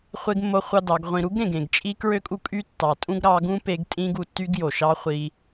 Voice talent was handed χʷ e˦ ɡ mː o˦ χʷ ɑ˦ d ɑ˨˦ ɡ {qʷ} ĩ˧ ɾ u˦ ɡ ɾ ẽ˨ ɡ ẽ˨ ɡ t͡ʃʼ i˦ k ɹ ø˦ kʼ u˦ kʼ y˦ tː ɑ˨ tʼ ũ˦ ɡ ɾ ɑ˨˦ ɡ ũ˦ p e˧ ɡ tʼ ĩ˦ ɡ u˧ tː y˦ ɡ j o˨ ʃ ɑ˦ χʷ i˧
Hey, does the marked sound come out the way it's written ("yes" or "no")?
no